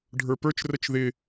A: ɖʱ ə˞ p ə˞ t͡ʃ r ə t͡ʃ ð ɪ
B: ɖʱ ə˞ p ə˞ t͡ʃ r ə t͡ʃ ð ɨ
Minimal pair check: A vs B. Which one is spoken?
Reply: A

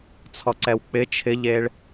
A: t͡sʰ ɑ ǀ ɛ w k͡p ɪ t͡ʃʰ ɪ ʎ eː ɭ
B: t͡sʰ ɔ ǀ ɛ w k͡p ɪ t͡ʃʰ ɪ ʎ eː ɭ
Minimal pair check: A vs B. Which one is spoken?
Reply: B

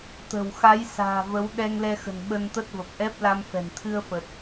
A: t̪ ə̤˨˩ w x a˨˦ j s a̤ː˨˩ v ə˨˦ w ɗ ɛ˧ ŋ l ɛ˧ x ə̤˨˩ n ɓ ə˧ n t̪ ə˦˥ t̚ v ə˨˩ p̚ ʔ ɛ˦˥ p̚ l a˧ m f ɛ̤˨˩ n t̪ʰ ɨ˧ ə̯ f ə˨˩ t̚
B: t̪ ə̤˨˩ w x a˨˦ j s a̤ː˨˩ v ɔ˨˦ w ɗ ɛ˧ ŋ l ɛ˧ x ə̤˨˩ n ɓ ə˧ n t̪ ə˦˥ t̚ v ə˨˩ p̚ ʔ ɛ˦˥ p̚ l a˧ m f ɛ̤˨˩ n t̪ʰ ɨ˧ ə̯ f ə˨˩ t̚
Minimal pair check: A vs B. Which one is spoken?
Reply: A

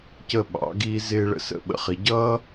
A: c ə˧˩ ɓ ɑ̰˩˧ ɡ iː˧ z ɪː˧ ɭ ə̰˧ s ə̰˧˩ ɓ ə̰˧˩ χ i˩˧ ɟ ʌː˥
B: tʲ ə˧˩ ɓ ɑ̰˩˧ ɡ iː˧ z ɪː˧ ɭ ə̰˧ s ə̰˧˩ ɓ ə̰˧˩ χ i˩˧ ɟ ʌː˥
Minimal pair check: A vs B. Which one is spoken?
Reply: A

